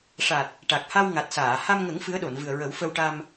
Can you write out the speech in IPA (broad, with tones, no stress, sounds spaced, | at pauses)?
ʂ a˨˩ t̚ | ʈ a˨˩ k̚ h a˧ w ŋ a˨˩ t̚ s aː˨˩˨ h a˧ m ŋ ə˨˩˦ ŋ f ɨ˧˥ ə̯ ɗ o˨˩˨ n v ɨ˨˩ ə̯ ɹ ə˨˩˦ w f ə˧ w ʈ a˧ m